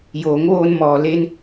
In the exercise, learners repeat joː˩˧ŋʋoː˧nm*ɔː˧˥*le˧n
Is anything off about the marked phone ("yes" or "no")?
yes